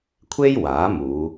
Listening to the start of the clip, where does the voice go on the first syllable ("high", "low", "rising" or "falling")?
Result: high